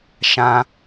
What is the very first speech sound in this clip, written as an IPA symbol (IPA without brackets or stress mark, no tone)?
ʃ